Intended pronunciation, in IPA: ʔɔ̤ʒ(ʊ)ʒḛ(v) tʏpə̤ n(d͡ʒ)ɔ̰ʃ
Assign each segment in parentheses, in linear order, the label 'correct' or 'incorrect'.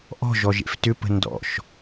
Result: incorrect: ɔ, incorrect: f, incorrect: d

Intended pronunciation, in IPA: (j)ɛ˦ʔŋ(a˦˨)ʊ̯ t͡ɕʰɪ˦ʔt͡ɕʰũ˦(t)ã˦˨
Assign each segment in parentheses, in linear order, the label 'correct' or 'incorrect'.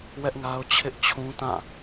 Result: incorrect: w, incorrect: a˦, correct

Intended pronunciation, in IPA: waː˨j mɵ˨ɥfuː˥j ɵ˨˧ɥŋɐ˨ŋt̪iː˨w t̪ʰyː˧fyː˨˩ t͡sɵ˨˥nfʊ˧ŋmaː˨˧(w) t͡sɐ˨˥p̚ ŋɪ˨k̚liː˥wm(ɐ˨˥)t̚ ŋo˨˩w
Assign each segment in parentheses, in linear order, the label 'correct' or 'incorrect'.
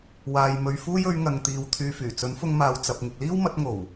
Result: correct, correct

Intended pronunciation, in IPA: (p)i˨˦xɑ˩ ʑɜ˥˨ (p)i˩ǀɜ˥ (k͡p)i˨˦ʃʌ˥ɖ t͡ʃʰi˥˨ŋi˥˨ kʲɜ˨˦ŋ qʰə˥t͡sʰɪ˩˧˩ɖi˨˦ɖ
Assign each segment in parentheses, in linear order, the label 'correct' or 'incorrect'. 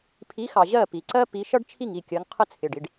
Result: incorrect: pʰ, correct, incorrect: p

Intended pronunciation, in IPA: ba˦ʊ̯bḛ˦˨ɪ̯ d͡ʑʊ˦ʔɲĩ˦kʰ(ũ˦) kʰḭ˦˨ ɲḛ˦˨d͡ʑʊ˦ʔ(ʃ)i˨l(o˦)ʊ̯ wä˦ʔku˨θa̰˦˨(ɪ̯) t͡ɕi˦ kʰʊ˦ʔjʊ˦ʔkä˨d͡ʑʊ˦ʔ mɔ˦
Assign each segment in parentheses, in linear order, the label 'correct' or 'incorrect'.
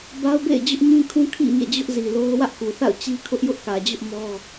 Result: correct, incorrect: z, correct, incorrect: ʊ̯

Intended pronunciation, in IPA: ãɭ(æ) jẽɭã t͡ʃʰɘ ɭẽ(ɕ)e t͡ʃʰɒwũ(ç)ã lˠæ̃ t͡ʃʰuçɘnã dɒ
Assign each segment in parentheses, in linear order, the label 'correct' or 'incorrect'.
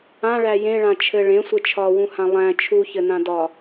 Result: correct, incorrect: sʷ, incorrect: h

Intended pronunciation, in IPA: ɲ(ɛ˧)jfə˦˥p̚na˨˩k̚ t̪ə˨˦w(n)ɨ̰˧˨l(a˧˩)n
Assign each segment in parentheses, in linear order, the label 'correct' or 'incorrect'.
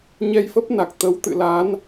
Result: correct, incorrect: t̪, incorrect: a˨˦

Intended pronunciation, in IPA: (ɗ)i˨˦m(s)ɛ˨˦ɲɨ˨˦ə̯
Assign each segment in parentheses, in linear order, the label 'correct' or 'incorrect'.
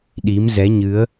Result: correct, incorrect: z

